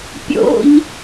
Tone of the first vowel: high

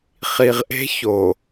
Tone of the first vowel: low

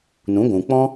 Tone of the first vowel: rising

